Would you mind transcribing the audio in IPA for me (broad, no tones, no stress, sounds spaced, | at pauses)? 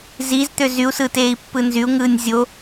z i z t̪ ø z y u̯ s ɯ t eː i̯ pː ɯ n z y u̯ ŋ ɯː nʲ zʲ o